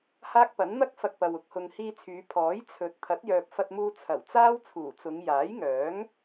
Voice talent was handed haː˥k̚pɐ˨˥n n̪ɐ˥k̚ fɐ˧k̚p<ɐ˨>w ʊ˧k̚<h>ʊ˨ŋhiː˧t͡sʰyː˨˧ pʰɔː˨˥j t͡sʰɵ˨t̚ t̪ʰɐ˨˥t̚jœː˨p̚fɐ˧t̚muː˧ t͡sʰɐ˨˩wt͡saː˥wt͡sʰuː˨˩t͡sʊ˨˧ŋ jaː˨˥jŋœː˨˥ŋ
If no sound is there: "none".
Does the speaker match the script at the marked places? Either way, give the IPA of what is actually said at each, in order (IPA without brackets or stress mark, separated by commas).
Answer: ɐ˨, h